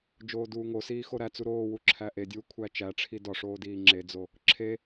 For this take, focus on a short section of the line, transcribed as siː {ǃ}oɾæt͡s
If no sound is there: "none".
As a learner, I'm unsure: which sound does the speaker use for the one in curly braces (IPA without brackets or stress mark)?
x